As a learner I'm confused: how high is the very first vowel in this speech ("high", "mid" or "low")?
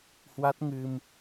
low